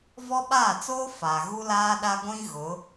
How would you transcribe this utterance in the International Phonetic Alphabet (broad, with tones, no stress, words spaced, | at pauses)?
vɔ˦ɓaː˦˨ t͡soː˦ fa˨ ɣu˦laː˦ɗa˦ ɡʷĩ˦ ɣʊ˨˦